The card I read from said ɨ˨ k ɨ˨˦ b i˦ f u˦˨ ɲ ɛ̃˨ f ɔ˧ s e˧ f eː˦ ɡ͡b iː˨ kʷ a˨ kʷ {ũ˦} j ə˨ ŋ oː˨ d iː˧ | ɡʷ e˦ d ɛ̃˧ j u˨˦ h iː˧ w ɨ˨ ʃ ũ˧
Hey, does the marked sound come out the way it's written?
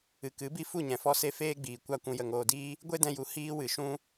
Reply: no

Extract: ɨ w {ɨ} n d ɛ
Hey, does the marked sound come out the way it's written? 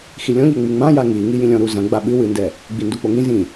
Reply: yes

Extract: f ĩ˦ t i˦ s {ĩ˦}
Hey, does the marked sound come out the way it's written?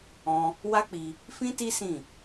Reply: no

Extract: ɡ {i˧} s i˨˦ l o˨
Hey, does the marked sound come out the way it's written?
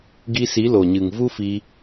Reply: yes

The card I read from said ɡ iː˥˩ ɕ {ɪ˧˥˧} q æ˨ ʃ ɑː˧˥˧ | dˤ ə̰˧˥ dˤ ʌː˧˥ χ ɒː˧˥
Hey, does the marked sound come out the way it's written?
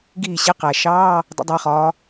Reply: yes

